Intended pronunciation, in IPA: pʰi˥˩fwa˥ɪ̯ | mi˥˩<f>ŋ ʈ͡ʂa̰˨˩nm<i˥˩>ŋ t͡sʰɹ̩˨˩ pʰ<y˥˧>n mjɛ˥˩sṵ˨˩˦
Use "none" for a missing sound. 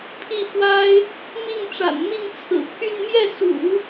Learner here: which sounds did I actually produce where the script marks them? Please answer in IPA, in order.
none, i˥˩, y˥˧

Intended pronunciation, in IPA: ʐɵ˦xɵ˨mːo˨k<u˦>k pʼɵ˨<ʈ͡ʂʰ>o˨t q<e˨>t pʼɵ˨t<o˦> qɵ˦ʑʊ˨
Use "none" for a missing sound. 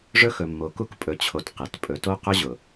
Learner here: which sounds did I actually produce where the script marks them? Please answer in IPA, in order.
u˦, t͡ɕʰ, e˨, o˦

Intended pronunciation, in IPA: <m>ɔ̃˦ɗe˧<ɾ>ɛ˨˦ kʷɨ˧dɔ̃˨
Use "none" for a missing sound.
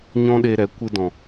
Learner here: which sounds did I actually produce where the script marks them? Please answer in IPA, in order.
ɲ, ɾ

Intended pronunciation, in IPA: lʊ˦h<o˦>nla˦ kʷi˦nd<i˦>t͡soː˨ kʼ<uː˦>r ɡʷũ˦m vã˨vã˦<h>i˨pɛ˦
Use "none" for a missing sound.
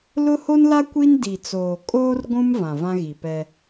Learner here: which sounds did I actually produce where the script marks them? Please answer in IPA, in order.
o˦, i˨, oː˦, ɣ

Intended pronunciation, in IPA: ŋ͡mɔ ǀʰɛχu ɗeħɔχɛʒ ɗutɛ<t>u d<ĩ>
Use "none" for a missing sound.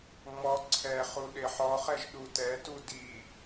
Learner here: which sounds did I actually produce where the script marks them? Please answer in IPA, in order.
t, i

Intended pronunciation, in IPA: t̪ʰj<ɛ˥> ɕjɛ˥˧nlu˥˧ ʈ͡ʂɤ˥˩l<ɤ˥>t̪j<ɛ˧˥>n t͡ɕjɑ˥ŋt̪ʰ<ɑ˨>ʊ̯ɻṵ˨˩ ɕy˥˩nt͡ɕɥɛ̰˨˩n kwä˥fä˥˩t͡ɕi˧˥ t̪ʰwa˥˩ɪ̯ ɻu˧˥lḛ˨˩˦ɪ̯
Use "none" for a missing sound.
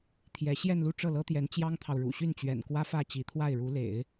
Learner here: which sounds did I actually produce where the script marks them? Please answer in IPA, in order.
ɛ˧˥, ɤ˥, ɛ˧˥, ɑ˨

